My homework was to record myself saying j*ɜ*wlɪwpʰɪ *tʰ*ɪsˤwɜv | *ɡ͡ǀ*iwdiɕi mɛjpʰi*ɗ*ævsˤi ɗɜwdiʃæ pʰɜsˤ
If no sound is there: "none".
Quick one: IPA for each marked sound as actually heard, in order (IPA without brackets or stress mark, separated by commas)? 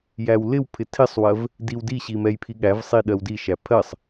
æ, tʰ, d, ɠ